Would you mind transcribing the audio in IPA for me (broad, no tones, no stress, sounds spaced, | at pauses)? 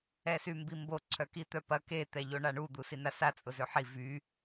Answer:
ɛ s y m b i m b o ǀʰ œ k i t̪ œ p ɐ k e t̪ ɛ ʎ o ɳ a ɳ u d̪ u s i n a s a t͡sʼ ʊ z ø ħ i v y